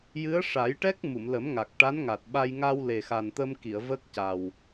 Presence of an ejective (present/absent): absent